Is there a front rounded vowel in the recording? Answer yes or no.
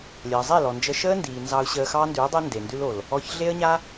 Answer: no